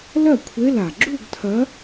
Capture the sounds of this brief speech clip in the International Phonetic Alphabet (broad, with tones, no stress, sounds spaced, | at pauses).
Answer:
l ɐ˥˩ kʷʰ e˧˥˧ l a˩ ɡ͡ǁ u˥˧ ɡ tʰ ɐ˧˥